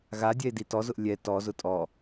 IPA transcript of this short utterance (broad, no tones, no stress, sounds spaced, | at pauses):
ɣ a dʲ ɛ e̯ d i t ɔ z ʊ ʔ lʲ ɛ t ɔ z ʊ tʼ ɔ